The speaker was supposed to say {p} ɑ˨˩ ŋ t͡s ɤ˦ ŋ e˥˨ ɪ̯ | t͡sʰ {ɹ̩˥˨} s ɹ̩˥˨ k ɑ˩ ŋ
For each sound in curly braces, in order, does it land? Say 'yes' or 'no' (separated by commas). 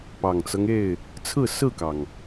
yes, yes